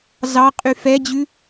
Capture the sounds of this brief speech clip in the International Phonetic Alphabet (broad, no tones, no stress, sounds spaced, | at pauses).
z ɑ qʼ y f ɛ d͡ʑ ʉ